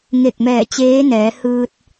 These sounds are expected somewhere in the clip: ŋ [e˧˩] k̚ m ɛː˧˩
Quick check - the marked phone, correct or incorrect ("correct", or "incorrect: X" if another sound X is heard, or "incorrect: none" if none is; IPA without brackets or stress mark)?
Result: correct